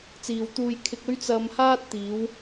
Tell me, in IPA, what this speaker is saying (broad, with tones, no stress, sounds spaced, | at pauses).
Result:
t͡s iː˨ w t̪ uː˧ j kʰ ɪ˧ k̚ ɵ˥ ɥ t͡s ɐ˧ m h aː˥ t̚ t̪ iː˨˧ w